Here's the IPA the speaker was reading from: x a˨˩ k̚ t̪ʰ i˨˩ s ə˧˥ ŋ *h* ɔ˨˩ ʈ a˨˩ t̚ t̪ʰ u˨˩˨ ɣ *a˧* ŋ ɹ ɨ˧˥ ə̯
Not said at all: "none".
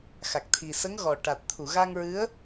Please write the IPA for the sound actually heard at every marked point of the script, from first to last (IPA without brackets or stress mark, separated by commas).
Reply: ɣ, a˧